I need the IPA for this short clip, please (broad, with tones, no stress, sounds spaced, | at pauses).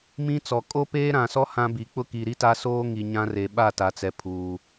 m ĩ˦ t͡s ɔ˨ kʼ o˦ p eː˦ ɾ ã˨ s ɔ˦ h ã˦ b i˨ k͡p ʊ˦ k i˨ ɾ i˦ t a˦ s oː˦ ŋ i˨ ɲ ã˦ r e˨ ɓ a˦˨ t a˨ t͡s ɛ˨ pʰ uː˨